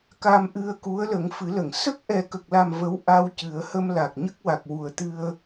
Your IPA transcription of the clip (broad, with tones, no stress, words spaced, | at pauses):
ka˧mʔɨ˧ə̯ku˧˥ə̯ lə˨˩˦ŋfɨ˨˩˦lə˨˩˨ŋ sə˦˥k̚ʔɛ˨˩kə˨˩k̚la˨˩m və˧˥wʔa˧w cɨ˨˩˦ə̯ hə˧mla˨˩k̚ ɲə˦˥k̚ wa˨˩k̚wu˨˩ə̯t̪ɨ˧ə̯